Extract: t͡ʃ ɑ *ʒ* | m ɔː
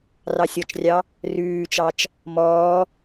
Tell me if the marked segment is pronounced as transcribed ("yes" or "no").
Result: no